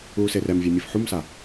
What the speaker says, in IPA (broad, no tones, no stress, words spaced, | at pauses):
uːserɛmvʲɛ mʲɯfħumsa